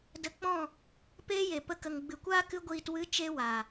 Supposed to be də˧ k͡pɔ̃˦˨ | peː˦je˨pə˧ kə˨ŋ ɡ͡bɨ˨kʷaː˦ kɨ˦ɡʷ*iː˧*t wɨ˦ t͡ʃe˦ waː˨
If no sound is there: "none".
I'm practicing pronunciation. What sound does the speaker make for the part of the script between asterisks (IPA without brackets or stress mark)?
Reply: iː˧